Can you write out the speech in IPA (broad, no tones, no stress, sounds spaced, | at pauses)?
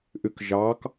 ʔ y k ʒ ɑ k